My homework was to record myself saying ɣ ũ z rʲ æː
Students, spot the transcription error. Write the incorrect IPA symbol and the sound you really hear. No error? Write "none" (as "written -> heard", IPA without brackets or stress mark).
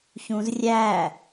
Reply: ɣ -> ç